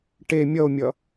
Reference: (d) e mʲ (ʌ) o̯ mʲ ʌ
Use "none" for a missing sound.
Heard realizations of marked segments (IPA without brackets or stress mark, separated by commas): ʈ, ʌ